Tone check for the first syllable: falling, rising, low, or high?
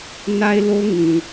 high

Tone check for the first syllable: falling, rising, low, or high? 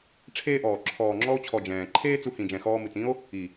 high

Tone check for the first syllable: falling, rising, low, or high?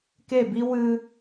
falling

